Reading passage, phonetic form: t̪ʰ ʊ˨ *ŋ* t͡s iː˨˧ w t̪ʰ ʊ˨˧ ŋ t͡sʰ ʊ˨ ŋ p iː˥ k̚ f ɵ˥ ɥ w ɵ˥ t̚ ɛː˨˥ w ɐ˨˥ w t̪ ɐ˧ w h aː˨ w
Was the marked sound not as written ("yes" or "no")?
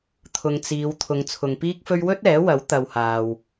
no